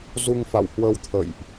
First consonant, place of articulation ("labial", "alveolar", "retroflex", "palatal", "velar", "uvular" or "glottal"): alveolar